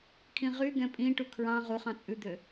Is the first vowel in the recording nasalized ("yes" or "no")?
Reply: yes